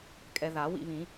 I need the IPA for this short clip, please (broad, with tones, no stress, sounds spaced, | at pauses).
kʼ ɛ˧ ð a˨˩˦ w ḭ˥˧ β ĩ˨˩˦